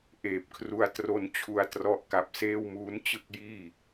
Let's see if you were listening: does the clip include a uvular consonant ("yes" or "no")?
no